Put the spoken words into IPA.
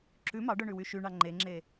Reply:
ǁʉ mɑɖœɳʉwy ʃyɳɑ ŋ͡ǃeŋ͡ǁe

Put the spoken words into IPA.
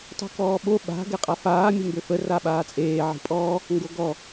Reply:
tˤṳkɔːɓo ɓa̤ ɡɛqʼafaː mʲə̤mbøfə raɓaːt͡sʼeː ʕi̤pʼɔ | ŋɡoɡɔ

